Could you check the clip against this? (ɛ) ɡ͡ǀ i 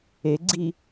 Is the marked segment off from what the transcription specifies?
yes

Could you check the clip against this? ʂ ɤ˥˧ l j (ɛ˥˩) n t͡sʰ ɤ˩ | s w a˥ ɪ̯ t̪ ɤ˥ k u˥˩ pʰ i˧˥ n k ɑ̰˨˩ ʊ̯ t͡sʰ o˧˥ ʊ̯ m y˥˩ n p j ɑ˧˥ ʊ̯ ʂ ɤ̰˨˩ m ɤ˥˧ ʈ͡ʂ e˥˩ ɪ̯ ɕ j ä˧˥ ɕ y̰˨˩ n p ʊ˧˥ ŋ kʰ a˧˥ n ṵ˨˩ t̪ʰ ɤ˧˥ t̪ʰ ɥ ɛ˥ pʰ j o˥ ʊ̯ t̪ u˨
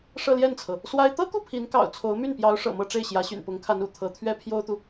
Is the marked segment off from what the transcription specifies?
no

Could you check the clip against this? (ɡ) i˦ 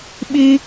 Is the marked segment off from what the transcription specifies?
yes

